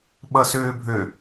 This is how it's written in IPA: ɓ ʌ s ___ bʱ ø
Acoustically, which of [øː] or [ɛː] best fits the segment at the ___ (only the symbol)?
øː